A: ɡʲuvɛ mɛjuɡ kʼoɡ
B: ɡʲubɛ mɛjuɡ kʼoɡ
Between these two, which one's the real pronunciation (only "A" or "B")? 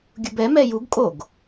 B